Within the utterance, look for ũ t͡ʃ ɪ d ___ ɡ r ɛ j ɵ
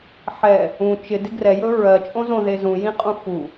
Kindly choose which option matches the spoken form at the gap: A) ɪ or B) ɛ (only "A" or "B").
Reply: A